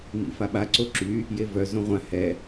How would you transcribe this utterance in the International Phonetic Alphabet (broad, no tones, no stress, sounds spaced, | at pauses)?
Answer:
m ḭ f a ɓ a ǀ o ǁ y | j e v œ z õ ʁʷ ã h ɛ